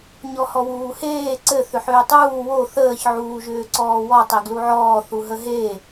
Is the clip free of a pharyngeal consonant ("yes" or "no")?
no